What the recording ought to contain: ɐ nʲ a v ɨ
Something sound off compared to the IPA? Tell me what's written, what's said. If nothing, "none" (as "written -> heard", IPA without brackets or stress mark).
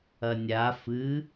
v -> f